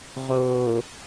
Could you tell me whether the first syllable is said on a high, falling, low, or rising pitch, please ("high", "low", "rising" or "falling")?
low